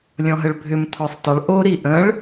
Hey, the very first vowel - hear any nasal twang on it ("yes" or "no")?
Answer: yes